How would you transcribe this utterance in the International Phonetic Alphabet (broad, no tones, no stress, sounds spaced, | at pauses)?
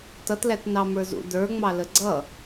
t ʌ t l æ t n ɑ m ə˞ z ṵ d ə˞ ŋ͡m ɑ l ə ɡ͡ǀ ʌ